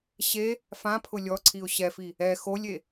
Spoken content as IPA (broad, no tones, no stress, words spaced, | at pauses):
ɕe | fãpʰʊ lʲɔǀʰiʊ̯ ɕɛfi | ɛ xolʲe